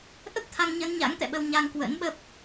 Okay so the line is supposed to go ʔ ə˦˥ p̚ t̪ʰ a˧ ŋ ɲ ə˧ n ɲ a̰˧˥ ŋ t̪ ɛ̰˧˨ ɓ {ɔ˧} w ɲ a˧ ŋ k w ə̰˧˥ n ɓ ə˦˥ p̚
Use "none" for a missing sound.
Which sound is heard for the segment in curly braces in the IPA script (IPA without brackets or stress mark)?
ə˧